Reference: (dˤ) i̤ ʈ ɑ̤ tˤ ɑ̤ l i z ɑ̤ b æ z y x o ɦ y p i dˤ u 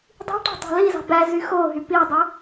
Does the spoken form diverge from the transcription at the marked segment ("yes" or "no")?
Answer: no